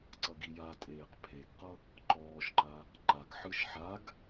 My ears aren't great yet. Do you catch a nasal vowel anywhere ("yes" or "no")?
no